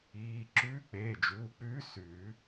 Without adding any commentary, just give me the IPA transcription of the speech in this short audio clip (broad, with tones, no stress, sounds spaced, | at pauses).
iː˩˧˩ ǁ ʉː˧˥ k͡p eː˩˧˩ d͡ʒ uː˩˧˩ k͡p ʉː˧˥ s ʉ˨˩˦